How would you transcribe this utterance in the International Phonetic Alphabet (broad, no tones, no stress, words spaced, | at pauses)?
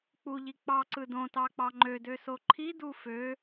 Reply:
k͡puʎi k͡pɑǀɯ dõtɑk͡pɑ ŋ͡ǃødøso ǃʰidu fø